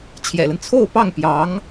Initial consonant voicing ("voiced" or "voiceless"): voiceless